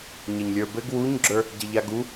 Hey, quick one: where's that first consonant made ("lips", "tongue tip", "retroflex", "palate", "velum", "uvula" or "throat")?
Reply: palate